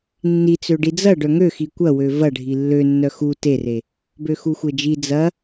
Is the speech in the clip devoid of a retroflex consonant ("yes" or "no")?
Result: no